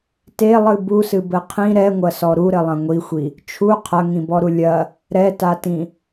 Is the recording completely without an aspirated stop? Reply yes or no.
no